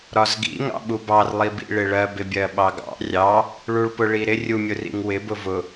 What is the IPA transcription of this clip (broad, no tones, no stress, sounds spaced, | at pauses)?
ɾ ɒ z ɡ ḭ ŋ ɑ̰ ɓ u b ɑ r lˠ i b ḭ ɭ ɪ ɭ ɜ b ɪ bʲ ɜ ɓ ɑ ɡ ɑ̰ rʲ ɑ | ɭ u ɭ p ʊ ɭ i ɾ ɪ rʲ u mʲ ʊ r ḭ ŋ w ɪ b ʊ v ʊ